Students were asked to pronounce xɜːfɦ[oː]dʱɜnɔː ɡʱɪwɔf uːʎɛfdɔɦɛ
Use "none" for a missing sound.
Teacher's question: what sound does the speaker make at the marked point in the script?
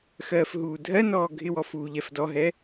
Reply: uː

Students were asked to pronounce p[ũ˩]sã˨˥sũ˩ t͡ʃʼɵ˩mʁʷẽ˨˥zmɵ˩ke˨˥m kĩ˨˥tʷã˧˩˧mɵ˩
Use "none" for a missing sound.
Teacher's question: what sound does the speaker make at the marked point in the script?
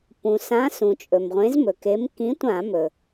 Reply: ũ˩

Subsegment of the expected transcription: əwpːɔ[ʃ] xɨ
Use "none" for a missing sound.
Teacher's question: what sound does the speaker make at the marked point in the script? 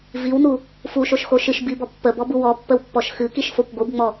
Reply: ʃ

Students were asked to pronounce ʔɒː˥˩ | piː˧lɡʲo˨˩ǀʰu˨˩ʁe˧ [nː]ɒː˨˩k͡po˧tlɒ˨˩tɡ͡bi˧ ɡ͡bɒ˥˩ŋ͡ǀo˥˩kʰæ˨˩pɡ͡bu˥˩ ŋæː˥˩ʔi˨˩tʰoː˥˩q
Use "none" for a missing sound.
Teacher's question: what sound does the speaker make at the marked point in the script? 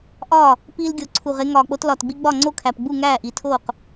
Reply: ŋ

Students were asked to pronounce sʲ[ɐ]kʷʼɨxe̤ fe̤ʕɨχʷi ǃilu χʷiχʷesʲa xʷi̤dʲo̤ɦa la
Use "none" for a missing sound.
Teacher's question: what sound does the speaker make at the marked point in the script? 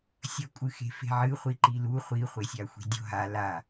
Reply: ɐ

